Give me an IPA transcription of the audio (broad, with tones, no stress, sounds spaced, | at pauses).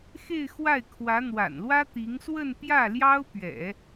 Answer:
x e˥˧ ɪ̯ x w a˥˩ ɪ̯ kʰ w ä˧˥ n̪ w a̰˨˩ n l w ä˥ t̪ i˧˥ ŋ s w ə˥˧ n p j ä˥˩ l j ɑ˥ ʊ̯ p ɥ ɛ̰˨˩˦